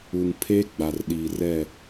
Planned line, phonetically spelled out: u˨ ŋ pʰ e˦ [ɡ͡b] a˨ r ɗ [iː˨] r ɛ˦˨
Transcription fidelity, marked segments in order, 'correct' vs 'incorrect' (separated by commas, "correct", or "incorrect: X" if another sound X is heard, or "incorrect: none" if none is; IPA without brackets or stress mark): correct, correct